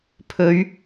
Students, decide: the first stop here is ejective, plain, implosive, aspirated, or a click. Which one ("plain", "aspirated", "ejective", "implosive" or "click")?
aspirated